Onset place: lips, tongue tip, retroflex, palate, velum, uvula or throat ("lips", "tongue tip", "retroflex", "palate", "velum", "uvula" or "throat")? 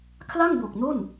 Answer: velum